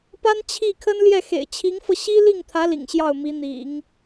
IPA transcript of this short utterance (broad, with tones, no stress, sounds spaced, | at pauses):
p a˥ n t͡ɕʰ i˥˩ kʰ ə˥ n l j ɛ˥˩ x ḛ˨˩ ɪ̯ t͡ɕʰ i˧˥ ŋ f ɤ˧ ɕ i˥ l i˥˩ ŋ t̪ʰ ä˧˥ l ḭ˨˩ ŋ ɕ j ɑ˥˩ ʊ̯ m i˧˥ n̪ ḭ˨˩˦ ŋ